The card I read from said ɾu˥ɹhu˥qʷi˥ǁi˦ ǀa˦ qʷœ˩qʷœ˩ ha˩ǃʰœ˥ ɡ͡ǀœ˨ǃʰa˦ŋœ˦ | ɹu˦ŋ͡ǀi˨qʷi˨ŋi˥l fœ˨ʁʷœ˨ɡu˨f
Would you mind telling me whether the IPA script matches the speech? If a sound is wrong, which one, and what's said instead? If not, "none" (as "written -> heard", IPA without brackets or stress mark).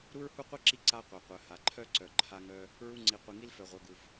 ɡ͡ǀ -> ǀ